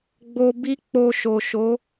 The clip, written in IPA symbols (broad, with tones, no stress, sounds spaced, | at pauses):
ɡ͡b o˧ b i˦ k͡p o˧ ʃ o˨ ʃ o˨˦